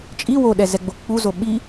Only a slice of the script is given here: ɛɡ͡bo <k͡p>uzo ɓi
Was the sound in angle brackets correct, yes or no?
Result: yes